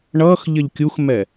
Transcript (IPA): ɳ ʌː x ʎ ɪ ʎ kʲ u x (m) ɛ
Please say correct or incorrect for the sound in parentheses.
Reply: correct